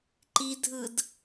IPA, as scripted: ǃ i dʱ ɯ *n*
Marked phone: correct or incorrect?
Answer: incorrect